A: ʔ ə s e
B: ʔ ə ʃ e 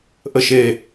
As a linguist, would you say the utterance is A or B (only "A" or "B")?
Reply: B